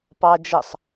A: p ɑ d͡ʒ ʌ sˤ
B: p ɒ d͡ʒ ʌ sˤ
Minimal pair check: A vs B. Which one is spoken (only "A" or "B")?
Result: A